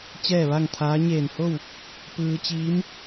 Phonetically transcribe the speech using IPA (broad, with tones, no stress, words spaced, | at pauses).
t͡ɕɛː˥˨ʋa˥˨ŋt̪ʰaː˧˥ ɲeː˧˩nho˥˨w | pɯː˧t͡ɕiː˧˥m